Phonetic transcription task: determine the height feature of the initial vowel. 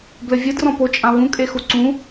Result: mid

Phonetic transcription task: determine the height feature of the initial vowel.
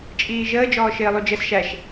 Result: high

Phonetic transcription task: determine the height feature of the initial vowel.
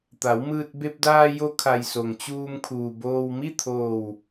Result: low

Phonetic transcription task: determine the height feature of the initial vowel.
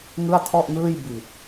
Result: high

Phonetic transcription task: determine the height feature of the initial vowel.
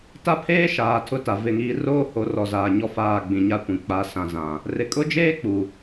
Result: low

